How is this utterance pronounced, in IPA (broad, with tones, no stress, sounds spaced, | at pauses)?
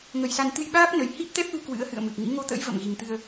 ŋ ə˨˩ j s a˧ n t̪ ɨ˧ j ɓ aː˦˥ p̚ n ə˨˩ j h i˦˥ p̚ t̪ ɛ˦˥ p̚ l u˧ k w ɨ̰˧˥ ə̯ h ɨ̰˧˨ ə̯ m ɨ˨˩ k̚ ŋ ḭ˧˥ ŋ o˧ t̪ ə̰˧˥ j v ə̰˧˨ m ɣ i˨˩ ŋ t̪ ɨ˧ ə̯